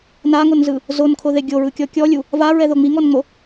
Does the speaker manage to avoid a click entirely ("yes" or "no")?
yes